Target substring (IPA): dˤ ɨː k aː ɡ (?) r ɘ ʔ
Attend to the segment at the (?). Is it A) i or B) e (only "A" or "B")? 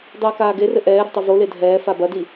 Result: B